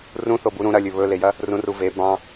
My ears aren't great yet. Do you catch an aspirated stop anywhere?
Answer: no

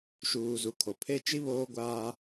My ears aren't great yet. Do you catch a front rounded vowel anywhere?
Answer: no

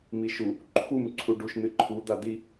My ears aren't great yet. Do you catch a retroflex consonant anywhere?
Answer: yes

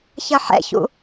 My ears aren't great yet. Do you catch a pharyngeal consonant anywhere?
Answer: yes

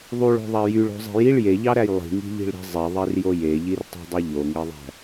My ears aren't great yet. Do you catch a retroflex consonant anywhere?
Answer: yes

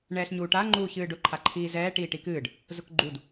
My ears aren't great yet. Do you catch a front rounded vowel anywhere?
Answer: no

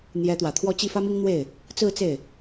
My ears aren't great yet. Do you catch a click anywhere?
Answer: no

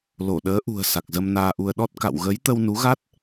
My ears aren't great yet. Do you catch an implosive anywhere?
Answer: yes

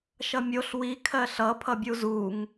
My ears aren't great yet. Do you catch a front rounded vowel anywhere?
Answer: no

